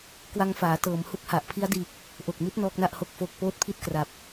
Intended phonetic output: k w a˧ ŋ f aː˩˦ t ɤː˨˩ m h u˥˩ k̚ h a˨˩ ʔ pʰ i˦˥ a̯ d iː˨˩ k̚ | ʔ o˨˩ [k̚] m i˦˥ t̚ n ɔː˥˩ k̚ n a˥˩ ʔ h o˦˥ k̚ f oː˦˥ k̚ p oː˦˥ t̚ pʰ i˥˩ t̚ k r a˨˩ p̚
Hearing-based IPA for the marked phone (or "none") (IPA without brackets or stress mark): k̚